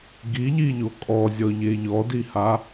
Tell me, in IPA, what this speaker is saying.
ɡiʎiʎo kʼɔzʲɔʎe ʎɔdiha

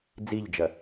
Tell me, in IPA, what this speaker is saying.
d͡ziʎd͡ʒɐ

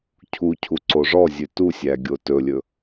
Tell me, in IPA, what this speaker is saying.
cʰucʰu ǀoʐɔzʲʉ tusʲæ ɡʲotɵlʲɵ

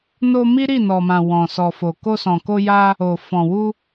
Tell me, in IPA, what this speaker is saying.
no˧mi˦ ɾi˦˨nɔ˨mã˨ wɔ̃˨sɔ˨fo˨ ko˧sɔ̃˨ko˧ja˧ | o˨fɔ̃˨wu˧

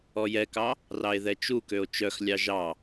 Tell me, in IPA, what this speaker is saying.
ɔjɛkɑ | rɑe̯ðɛt͡ʃukøo̯ t͡ʃœxlʲɑ ʒɑ

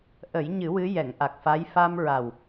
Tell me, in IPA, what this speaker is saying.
ʔə˨˩˦jɲɨ˨˩˦ wɨ˧˥jɛ˨˩˨ŋ ʔa˨˩k̚fa˧˥j fa˧m ɹa˨˩w

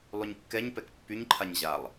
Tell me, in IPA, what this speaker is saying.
lˠyɲkːɛɲpɛk pːyɲǃʰaɲ ʑalˠ

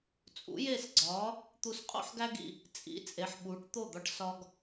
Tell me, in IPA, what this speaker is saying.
t͡sʼṵ˩˥je˥˩sɡ͡ǀɒː˩˥ | t̪u˧sqʼo̰˥ħɡæ˥ɡḭ˥˩ | t͡sʼḭ˩˥ t͡sʼe˩˥ħɓuː˩˥ʈ t̪o˥˩d̪ɒ˧ʈ sɒ˥ɡ

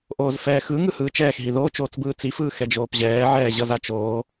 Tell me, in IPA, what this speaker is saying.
ʔoːzfɛːxɯ ŋɯhɯːt͡ʃɛːxɦi ðoːt͡ʃoːt͡sbɯː t͡sifɯː xɛd͡ʒoːpʑɛː ʕɛːʑʌzat͡ʃoː

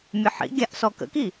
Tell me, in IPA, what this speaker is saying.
mʲəħḭɡʲaʔ sɔkə̰ki

